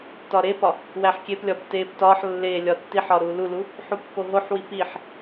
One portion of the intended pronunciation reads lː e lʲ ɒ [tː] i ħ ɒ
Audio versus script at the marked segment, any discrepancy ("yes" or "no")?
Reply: no